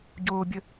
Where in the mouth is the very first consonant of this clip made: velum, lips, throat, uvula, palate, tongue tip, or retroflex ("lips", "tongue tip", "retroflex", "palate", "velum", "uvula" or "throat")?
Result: palate